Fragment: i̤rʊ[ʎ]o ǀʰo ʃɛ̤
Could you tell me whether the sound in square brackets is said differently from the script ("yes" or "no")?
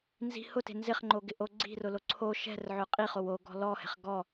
yes